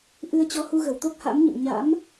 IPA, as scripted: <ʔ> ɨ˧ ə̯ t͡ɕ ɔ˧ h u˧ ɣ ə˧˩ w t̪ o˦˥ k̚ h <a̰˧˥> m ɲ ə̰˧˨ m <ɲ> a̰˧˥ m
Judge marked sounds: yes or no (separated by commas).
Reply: yes, yes, yes